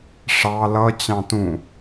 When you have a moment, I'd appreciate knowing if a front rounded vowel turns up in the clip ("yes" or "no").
no